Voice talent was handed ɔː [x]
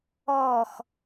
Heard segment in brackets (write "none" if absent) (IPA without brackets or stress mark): x